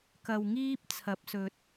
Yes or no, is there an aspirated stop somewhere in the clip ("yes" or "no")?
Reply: yes